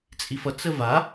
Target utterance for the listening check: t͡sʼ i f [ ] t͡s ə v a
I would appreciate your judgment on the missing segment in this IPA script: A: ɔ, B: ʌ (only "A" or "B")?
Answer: B